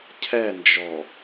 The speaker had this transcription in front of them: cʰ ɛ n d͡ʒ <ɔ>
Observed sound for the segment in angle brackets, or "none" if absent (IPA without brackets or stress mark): ɔ